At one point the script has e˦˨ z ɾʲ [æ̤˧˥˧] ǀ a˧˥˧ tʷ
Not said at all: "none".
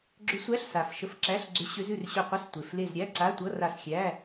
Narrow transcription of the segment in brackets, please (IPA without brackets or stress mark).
æ˧˥˧